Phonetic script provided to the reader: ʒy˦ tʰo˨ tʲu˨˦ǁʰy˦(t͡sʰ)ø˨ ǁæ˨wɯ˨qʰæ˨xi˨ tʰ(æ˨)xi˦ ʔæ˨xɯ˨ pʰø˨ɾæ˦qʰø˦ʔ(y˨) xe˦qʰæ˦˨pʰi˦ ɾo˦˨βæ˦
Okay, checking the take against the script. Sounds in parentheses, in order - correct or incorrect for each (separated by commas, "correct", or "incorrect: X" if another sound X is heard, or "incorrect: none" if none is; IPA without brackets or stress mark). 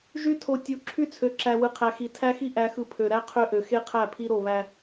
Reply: correct, incorrect: æ˦, incorrect: ø˨